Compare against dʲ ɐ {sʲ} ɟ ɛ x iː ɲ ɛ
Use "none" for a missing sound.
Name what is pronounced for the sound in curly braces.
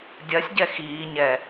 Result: sʲ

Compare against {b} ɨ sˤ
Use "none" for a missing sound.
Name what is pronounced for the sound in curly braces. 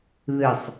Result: ð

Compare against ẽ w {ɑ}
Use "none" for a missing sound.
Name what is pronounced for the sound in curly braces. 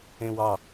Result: ɑ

